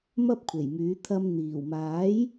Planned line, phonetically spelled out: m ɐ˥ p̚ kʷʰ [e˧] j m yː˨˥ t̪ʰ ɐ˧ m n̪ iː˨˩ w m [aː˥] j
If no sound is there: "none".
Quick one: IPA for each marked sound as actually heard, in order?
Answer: e˨˩, aː˨˥

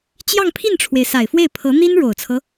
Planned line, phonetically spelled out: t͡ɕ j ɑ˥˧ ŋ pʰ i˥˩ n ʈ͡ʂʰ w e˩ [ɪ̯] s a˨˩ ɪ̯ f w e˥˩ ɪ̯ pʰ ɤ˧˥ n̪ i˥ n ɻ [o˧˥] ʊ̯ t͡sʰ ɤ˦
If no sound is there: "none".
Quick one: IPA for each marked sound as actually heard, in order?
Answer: ɪ̯, o˨˩

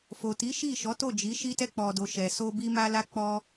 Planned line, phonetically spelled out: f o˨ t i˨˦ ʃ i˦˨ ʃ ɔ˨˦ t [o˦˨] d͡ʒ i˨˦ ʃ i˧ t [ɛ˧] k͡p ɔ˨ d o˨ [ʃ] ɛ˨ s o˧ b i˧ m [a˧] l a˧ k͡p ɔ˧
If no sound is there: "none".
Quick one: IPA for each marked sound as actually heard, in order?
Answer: o˦˨, ɛ˧, ʃ, a˧

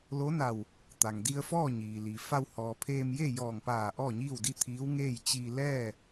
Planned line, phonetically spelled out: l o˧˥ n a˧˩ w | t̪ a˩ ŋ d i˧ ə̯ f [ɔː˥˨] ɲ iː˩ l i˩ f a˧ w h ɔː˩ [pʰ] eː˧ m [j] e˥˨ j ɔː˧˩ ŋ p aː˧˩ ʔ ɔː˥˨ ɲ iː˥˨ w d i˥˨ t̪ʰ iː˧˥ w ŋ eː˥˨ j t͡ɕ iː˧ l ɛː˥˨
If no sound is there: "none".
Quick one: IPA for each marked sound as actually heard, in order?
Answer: ɔː˥˨, pʰ, j

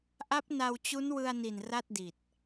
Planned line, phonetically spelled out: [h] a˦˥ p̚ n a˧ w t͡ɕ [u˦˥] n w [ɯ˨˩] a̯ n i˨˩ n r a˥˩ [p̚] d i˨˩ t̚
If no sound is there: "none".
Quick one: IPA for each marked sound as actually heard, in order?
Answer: ʔ, u˦˥, ɯ˧, t̚

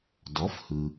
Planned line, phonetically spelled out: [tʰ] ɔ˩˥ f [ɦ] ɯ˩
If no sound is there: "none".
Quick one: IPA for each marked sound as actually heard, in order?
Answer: d, h

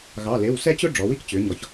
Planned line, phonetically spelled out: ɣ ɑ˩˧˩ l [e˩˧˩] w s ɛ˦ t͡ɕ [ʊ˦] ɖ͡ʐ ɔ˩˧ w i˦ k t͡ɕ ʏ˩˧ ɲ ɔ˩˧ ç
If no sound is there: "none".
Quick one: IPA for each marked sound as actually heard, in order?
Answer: e˩˧˩, ʊ˦

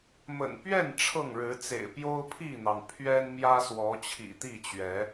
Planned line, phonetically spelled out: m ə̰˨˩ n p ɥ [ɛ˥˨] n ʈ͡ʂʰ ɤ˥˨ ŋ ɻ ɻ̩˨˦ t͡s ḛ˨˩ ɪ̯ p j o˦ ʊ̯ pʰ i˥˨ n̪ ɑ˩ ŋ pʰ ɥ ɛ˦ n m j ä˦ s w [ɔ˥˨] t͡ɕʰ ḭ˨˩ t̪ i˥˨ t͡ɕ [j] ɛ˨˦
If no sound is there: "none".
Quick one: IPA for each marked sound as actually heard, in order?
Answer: ɛ˥˨, ɔ˨˦, ɥ

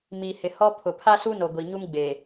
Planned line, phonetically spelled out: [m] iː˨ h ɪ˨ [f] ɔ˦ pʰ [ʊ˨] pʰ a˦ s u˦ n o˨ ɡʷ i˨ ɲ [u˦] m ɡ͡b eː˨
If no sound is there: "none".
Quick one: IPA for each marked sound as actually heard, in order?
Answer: m, h, ʊ˨, u˦

